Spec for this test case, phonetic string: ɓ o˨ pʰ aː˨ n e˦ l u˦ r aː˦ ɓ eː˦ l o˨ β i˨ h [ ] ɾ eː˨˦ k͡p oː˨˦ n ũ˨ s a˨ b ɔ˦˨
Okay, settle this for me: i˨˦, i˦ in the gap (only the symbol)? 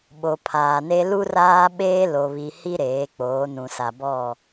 i˦